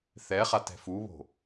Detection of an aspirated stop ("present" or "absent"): absent